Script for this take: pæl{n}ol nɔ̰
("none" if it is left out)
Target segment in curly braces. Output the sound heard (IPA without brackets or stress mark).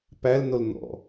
n